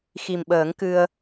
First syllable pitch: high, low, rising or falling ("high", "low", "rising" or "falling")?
low